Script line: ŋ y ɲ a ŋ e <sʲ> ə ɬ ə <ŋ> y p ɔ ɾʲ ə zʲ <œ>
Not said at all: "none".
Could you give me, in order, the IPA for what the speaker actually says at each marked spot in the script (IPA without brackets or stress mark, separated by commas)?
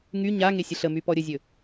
sʲ, m, ɵ